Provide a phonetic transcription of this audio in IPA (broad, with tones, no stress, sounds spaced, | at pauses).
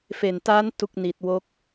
f e˨˩ n t a˦˥ n t u˦˥ k̚ n i˨˩ t̚ w o˦˥ k̚